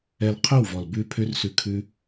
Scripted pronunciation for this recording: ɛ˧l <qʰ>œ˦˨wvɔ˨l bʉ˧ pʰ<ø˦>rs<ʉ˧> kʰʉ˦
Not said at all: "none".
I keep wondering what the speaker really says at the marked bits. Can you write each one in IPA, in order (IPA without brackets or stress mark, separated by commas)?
qʰ, ø˦, ʉ˧